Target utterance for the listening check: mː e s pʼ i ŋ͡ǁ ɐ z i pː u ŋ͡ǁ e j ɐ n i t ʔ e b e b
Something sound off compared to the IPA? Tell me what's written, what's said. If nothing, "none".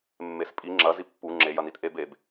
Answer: none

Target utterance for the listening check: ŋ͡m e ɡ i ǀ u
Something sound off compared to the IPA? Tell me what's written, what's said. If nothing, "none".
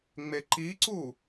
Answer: ɡ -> ǃ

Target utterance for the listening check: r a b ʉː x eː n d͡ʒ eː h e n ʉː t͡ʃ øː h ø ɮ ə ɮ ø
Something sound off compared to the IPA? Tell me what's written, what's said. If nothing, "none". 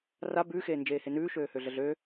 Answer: t͡ʃ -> ʃ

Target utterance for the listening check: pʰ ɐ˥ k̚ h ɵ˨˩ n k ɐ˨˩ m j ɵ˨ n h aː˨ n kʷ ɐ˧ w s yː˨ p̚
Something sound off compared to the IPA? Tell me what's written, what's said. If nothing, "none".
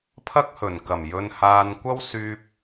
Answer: none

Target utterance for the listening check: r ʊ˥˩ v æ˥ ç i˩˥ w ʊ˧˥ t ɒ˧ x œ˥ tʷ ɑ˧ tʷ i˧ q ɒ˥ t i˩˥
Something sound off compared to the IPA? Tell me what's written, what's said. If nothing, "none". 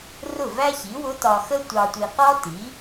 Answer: œ˥ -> ə˥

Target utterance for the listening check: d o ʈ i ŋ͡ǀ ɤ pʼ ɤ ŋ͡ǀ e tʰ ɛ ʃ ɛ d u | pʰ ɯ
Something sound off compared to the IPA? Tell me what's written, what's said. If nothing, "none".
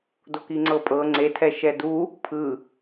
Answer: ʈ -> k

